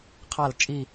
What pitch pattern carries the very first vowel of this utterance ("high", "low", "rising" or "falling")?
falling